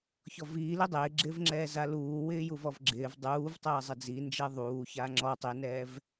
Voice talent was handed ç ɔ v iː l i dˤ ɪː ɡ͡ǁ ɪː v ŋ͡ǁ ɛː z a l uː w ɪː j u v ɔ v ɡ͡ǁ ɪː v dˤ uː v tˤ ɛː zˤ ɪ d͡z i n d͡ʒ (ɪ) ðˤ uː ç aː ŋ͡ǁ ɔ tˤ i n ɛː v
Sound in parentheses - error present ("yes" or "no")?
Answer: yes